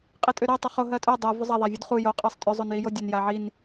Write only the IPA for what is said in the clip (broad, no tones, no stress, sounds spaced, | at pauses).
qʼ i tʼ ʏ ɾ ɜ tˤ œ χ o ɦ ɜ tʼ œ dˤ ɜ v ʏ zˤ a ðˤ a vʲ u d χ u j o qʼ ɜ sˤ tʼ ʏ zˤ o n j i j o dʲ ə n j a ʕ i n